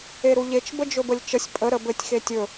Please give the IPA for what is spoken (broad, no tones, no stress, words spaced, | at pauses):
eɾuʎet͡ʃ bəd͡ʒɵbəlʲt͡ʃəsʲ pʼə ɾəbɘtʲ xetʲɵ